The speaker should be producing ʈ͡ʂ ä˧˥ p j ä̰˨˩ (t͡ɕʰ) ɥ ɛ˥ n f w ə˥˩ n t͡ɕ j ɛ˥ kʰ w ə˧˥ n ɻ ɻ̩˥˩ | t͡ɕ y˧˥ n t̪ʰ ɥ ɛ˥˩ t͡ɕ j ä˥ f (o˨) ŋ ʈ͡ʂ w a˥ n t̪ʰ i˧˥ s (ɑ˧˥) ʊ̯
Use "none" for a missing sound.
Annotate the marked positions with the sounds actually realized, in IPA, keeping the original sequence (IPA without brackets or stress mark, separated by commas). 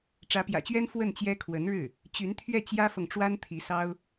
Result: t͡ɕ, ɤ˨, ɑ˥